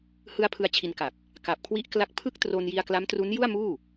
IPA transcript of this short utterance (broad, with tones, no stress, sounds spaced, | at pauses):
h ɯ˦˥ a̯ pʰ ɯ˧ a̯ t͡ɕʰ i˧ n k a˨˩ k̚ | k a˨˩ p̚ kʰ w i˦˥ ʔ k l a˦˥ k̚ pʰ ɯ˥˩ k̚ t r o˧ n j i˧ a̯ k l a˦˥ m t r u˦˥ n j u˥˩ a̯ m uː˥˩